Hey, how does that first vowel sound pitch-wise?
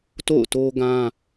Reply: falling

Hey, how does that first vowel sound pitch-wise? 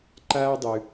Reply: high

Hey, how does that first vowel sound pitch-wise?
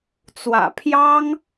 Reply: low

